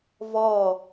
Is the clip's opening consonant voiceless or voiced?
voiced